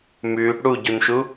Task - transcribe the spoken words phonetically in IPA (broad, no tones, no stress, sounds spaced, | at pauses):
m ʉ | ɽ u ɟ u n ʃ u